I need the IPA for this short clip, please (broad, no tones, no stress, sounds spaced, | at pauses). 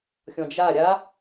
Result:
xʲ ɔ̃ d͡ʒ a ɾʲ a